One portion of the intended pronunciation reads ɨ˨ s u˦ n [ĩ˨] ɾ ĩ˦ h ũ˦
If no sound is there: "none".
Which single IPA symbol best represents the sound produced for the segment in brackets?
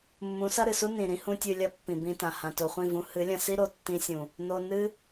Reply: ĩ˨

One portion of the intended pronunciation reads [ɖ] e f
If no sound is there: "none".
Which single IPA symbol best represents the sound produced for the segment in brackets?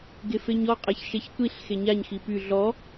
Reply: ɡ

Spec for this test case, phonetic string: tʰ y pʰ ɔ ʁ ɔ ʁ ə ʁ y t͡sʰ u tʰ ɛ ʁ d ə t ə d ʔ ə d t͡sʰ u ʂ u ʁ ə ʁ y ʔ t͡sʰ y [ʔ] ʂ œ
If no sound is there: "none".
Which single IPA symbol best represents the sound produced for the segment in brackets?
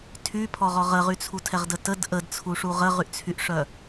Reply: ʔ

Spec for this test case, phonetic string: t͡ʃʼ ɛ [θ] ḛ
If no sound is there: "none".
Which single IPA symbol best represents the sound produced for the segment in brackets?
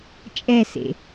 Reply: s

